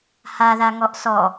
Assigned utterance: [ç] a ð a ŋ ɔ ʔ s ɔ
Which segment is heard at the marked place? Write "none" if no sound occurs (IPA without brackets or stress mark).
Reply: h